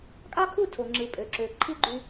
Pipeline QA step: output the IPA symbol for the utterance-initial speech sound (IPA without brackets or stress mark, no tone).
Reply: kʼ